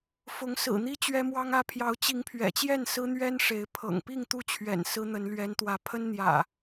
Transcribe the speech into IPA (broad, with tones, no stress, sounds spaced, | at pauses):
f ʊ˨˦ ŋ s ɹ̩˨˩ n̪ i˦ t͡ɕ ɥ ɛ˦ m w ɑ˦ ŋ ä˦ pʰ j ɑ˨˦ ʊ̯ t͡ɕ i˨˦ ŋ pʰ ɥ ɛ̰˨˩ t͡ɕ j ɛ˥˨ n s ɹ̩˦ n̪ ɥ ɛ˦ n ʂ e˨˦ ɪ̯ pʰ ɤ̰˨˩ ŋ p i˥˨ ŋ t̪ u˥˨ t͡ɕʰ ɥ ɛ̰˨˩ n s ɹ̩˦ n̪ ə˨˦ n l ɥ ɛ˨˦ n t̪ w ä˨˦ pʰ ə˦ n n̪ j ä̰˨˩